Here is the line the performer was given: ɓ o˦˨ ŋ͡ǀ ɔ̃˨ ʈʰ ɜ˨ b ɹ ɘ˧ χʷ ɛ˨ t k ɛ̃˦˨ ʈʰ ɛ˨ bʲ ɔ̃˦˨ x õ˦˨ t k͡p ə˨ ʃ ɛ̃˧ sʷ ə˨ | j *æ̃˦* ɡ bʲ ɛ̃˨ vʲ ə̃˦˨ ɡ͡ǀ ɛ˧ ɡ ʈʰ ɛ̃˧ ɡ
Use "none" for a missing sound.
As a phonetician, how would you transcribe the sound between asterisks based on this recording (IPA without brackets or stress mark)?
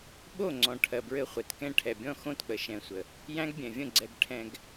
æ̃˦